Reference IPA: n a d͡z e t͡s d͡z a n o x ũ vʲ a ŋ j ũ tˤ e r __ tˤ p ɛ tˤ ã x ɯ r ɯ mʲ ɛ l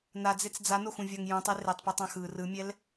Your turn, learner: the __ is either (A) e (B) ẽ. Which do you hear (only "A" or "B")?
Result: A